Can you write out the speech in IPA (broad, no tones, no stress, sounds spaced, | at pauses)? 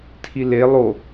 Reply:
tʰ i l e lˠ o